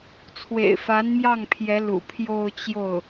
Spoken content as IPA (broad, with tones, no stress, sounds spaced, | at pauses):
t͡sʰ w ḛ˨˩ ɪ̯ f a˧˥ n m j ɑ˥˩ ŋ pʰ j ɛ˧˥ l ṵ˨˩ pʰ j o˥˧ ʊ̯ t͡ɕ j o˥˩ ʊ̯